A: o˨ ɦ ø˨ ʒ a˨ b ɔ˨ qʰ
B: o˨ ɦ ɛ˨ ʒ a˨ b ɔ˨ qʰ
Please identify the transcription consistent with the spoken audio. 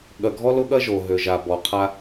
A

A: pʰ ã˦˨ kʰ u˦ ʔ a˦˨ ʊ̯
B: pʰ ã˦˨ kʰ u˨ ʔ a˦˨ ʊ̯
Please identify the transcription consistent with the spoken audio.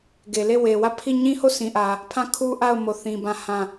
A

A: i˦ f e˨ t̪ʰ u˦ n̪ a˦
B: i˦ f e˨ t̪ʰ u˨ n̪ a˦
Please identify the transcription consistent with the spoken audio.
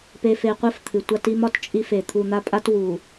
B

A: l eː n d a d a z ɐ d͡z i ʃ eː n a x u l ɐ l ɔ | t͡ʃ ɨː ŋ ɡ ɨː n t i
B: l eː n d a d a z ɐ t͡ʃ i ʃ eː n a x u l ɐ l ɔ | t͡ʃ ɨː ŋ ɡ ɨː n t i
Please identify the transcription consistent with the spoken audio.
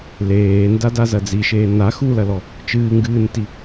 A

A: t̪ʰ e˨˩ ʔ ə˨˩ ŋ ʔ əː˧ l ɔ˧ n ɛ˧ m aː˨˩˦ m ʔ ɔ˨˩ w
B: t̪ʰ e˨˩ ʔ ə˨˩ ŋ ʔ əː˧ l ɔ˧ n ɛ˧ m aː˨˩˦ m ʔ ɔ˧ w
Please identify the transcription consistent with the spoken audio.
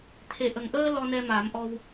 B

